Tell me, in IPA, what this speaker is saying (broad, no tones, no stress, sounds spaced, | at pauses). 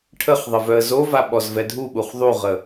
ʈʰ ə χ ðˤ ə v œ ə̯ z o v a ɓ ɔ z v ɛ dʱ u ɓ u χ ðˤ u ʁ ə